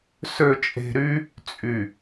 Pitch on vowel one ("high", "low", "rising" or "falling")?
low